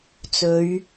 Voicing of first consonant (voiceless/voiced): voiceless